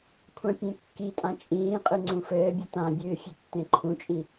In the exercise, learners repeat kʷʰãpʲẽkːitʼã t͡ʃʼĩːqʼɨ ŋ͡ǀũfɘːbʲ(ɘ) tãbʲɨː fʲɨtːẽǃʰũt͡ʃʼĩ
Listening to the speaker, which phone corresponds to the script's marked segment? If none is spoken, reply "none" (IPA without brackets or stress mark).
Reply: ɘ